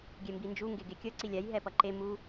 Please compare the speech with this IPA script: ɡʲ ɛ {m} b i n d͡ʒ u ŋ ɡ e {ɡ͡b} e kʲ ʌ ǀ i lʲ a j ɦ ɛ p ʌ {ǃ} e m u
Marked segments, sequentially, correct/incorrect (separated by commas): correct, incorrect, correct